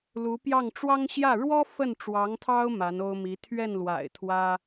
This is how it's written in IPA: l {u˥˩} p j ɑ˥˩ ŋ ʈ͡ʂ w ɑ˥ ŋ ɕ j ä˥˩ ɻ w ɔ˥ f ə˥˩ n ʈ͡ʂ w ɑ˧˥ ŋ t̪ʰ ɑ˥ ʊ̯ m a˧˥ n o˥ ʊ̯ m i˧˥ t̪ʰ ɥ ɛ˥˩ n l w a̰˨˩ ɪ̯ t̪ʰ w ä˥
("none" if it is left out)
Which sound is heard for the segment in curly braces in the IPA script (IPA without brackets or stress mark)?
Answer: u˧˥